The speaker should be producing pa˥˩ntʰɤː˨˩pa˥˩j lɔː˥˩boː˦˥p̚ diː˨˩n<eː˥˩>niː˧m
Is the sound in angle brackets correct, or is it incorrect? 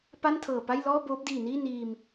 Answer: incorrect